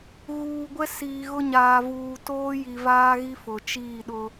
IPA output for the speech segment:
ɣ uː˨ ɡʷ ɛ˦ s iː˨ ɣ ʊ˦ ɲ aː˨ v uː˨ t oː˦ j i˨ v aː˦ ɣ i˦ f ʊ˨ t͡ʃ iː˦˨ ɗ ʊ˦

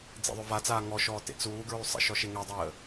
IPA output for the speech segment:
d͡z ḛ ðˤ ø v a t͡s aː ŋ ɔ ʃ ɔː t ḛ t͡s uː ɡ ɹ y sˤ ə̰ ʃ ɔ ʃ e ŋ ɛ dˤ əː

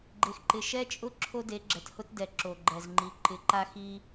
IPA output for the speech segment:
ɡ͡ǃ e˨ x ǃ ɪ˨ ʃ ɛ˦ t͡ʃʼ ʊ˦ ǁʰ o˦ d e˨˦ ɡ͡ǁ ɛ˨ t h ʊ˦ t d ɛ˨ ǁ o˨ ɡ͡ǃ ɛ˨ z ŋ͡ǃ i˨ ǃ ɪ˨ ǃ a˦ x i˦

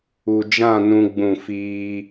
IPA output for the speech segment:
u˨ d͡ʒ ã˦˨ n ũ˦ ɡ͡b ũ˦˨ f iː˦

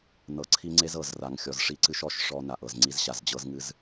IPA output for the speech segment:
n ɤ˨ ǀʰ i˦ ŋ͡ǀ e˦ z ɤ˨ z r a˨ ŋ xʲ ɔ˨ z ʂ i˦ ǀ ɨ˦ ʃ ɔ˦ ʃ ʂ ɔ˦ n a˨ ʔ ɤ˨ z ŋ͡ǀ i˦ z ɕ a˨ z d͡ʑ ɤ˦ z ŋ ɨ˦ z

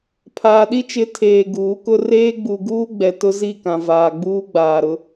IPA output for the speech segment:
pʰ aː˨ ɗ i˦ t͡ʃ ɪ˨˦ tʰ eː˨ ɡ uː˨˦ k ʊ˦ r eː˦ ɡ͡b u˨ ɡ uː˦ ɡ͡b ɛ˨ t ʊ˦ z i˦˨ k ã˨ v aː˨ ɡ͡b uː˦ ɡ͡b aː˨ ɾ ʊ˦

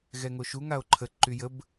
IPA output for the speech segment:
ɣ ɛ ŋ o ʃ u ŋ a o̯ ǃʰ ə ǃ y j ə b

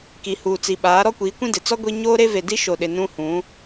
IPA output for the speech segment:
k i˨ h uː˨ t͡s i˨ ɓ aː˨˦ ɾ ɔ˦ kʷ iː˨˦ kʷ ĩ˦ d ɪ˨ t͡s ɔ˦ ɡʷ i˦ ɲ oː˦ ɾ e˦ v e˨ d i˦ ʃ o˨ ɗ ɪ˨ n ũ˦ h ũ˨˦

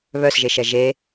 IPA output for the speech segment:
β œ s ʒ e ʃ ɛ ʒ e

